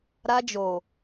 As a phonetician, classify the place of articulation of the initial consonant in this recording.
alveolar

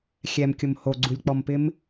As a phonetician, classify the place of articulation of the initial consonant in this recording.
velar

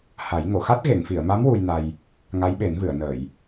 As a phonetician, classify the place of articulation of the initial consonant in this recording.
glottal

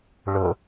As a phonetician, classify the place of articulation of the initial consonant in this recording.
retroflex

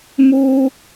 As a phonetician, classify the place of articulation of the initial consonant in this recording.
labial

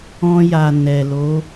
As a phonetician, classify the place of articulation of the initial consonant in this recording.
palatal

